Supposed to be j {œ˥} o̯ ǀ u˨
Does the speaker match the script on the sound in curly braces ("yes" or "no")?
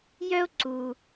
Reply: yes